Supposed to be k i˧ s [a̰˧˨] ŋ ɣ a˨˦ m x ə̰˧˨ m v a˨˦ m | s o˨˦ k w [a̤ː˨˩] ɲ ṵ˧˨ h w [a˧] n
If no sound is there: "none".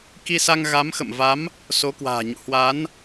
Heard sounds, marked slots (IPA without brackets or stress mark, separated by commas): a˧, a̤ː˨˩, a˨˦